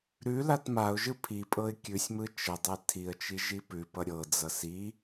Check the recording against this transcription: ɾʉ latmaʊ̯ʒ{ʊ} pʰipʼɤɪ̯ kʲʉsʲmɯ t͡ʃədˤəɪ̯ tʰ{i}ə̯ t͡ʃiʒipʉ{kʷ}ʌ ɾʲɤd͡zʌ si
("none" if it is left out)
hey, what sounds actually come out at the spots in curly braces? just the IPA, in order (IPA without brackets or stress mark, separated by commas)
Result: ɯ, i, p